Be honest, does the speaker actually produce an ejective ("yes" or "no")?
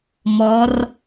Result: no